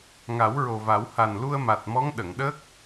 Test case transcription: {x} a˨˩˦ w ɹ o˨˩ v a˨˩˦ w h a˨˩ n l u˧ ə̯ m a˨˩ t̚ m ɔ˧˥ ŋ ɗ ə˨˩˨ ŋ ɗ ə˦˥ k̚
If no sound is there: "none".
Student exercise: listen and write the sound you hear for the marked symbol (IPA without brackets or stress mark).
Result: ŋ